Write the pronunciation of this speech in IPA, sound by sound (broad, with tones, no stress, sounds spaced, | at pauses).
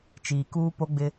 t͡ʃ iː˨ k uː˦ p o˦ ɡ͡b ɪ˦